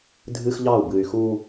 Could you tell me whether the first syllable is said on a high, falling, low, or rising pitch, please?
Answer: high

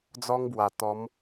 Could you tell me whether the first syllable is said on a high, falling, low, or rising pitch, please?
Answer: high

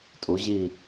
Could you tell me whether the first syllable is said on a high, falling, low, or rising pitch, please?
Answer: rising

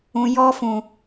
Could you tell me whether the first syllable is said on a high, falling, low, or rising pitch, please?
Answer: low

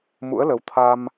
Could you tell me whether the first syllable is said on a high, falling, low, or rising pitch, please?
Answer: rising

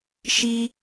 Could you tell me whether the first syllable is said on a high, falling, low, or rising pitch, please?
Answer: high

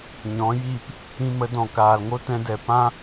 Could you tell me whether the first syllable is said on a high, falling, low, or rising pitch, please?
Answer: rising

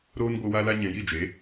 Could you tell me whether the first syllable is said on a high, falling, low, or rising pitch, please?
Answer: high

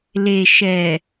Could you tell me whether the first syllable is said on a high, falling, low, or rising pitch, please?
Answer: low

